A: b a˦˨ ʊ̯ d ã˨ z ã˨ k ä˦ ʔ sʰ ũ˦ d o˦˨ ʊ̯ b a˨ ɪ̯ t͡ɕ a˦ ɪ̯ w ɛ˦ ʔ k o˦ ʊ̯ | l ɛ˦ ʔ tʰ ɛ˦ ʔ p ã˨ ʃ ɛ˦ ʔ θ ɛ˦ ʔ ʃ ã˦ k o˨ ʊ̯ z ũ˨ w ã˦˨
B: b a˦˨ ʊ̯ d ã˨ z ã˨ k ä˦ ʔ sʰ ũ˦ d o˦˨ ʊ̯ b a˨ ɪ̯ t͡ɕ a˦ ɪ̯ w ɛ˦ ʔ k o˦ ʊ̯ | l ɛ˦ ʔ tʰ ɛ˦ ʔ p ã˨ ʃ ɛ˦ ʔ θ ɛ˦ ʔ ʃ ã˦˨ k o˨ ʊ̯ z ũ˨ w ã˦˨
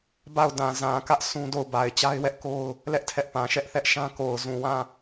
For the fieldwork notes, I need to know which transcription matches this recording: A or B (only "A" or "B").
A